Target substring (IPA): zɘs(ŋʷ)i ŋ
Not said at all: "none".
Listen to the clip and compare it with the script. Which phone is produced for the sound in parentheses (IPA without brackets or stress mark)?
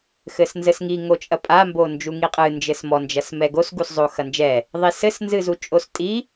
ŋ